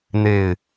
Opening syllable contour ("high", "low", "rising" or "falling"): low